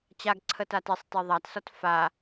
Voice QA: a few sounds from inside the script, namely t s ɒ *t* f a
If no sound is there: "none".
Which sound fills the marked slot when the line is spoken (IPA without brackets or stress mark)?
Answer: t